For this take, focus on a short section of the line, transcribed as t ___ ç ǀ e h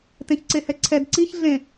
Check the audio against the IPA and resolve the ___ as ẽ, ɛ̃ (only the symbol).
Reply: ẽ